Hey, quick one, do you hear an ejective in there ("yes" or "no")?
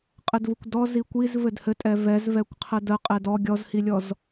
yes